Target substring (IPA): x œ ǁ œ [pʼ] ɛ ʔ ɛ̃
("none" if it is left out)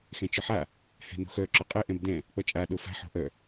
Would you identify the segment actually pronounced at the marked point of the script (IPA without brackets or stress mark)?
qʼ